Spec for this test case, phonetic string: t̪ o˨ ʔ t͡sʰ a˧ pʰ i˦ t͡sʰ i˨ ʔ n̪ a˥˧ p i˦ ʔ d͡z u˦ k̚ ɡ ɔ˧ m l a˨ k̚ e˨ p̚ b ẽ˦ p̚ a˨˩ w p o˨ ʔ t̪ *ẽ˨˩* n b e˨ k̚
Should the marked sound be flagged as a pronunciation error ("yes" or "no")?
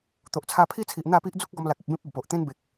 yes